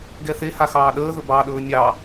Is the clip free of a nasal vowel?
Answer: yes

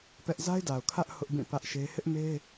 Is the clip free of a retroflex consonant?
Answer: yes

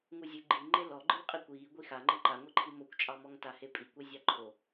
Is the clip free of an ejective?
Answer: no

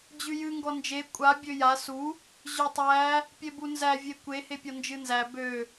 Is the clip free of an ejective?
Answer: no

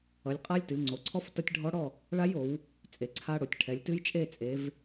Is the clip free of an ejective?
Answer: no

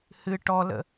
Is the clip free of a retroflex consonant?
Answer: no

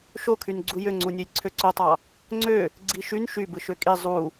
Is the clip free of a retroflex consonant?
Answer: yes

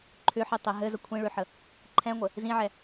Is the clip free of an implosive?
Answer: yes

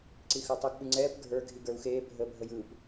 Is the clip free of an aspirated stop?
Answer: yes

